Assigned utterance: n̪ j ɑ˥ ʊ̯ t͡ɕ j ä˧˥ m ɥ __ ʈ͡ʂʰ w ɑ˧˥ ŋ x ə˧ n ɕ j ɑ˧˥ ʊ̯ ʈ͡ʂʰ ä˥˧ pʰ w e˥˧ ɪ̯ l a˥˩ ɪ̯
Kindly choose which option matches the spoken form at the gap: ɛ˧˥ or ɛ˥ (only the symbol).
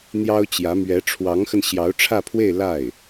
ɛ˧˥